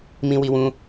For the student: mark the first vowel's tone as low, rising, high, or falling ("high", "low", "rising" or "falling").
high